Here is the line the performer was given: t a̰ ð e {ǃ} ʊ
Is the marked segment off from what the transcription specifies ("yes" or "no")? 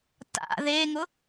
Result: yes